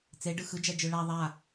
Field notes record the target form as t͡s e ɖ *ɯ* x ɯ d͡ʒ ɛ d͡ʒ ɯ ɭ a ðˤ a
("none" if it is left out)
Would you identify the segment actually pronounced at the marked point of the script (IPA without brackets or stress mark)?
ɯ